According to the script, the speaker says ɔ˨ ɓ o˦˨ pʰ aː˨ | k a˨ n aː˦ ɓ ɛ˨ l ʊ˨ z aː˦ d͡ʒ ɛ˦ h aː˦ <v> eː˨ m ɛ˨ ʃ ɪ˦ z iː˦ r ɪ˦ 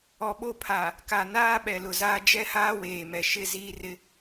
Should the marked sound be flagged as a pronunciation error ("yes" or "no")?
yes